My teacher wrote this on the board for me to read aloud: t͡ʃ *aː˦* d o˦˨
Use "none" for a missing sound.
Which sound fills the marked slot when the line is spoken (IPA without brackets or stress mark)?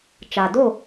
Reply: aː˨